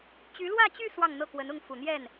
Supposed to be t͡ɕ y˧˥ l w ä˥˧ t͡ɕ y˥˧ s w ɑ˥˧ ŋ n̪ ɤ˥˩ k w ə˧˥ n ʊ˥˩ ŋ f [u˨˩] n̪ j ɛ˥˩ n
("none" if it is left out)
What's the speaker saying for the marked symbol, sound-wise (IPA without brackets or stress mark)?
u˨˩